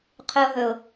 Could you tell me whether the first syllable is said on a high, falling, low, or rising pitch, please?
high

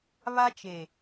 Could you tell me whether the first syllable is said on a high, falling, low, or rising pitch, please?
high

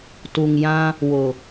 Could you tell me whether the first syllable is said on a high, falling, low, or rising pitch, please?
low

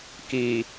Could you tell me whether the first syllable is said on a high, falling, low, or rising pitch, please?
low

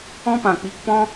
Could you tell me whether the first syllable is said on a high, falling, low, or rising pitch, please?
high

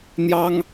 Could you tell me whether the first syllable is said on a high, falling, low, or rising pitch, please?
high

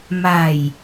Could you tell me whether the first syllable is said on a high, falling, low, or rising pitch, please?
low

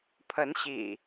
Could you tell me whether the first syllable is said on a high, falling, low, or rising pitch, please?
rising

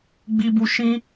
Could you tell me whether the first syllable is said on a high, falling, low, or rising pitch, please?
high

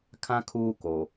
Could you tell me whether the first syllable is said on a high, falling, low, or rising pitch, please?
high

